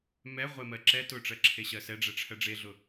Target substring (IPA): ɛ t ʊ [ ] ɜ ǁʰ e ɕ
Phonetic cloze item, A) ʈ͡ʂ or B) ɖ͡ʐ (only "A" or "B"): A